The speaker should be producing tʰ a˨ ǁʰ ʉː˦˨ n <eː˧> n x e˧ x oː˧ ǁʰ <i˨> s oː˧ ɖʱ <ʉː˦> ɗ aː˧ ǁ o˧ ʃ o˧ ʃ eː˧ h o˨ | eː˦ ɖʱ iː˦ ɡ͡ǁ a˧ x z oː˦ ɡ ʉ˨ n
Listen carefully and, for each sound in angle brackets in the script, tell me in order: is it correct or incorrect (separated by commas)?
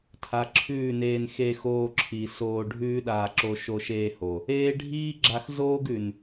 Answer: correct, correct, correct